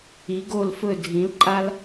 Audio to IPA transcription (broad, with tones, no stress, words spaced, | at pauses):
i˩˧ɡo˧˩lfɵ˧˩dʱĩ˩˧l ǃʼa˥l